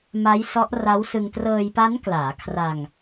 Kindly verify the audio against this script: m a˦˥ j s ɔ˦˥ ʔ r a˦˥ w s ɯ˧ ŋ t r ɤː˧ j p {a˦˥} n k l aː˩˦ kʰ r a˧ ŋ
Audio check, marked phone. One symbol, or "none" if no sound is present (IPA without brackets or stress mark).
a˦˥